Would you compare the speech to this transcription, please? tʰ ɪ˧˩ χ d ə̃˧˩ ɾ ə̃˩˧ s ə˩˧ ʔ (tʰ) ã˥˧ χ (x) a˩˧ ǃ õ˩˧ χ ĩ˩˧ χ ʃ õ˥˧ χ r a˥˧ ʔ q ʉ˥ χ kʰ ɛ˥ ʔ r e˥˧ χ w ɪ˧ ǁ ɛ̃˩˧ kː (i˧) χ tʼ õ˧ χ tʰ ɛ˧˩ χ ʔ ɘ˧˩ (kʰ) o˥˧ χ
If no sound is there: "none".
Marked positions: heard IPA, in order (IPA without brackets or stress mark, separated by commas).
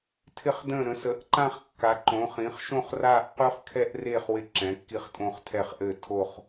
ǃ, kː, i˧, tʰ